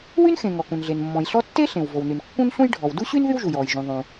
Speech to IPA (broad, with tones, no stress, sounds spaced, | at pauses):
w y˥ n x ẽ˩ ŋ ɔ˩ k ũ˩ n ɮ e˩ n mː ɔ̃˩ j ɬ ɔ˥ tː e˥ ɬ ẽ˩ w v o˩ w n y˩ n kː ũ˥ n ɬ ũ˥ j ɖʱ ɔ˩ w d u˥ ɕ y˥ n ð y˥ w ʒ u˩ j ɔː˩ j ʒ ũ˩ ðˤ ũ˩